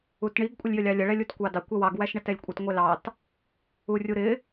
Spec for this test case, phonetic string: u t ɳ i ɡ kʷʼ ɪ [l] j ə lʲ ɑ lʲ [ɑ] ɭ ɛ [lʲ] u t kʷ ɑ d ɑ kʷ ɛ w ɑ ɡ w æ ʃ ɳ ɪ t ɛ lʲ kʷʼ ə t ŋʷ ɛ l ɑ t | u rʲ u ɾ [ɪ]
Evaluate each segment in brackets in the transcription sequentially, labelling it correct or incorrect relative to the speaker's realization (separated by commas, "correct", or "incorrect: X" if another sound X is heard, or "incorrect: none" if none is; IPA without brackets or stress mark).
incorrect: lʲ, incorrect: ə, correct, correct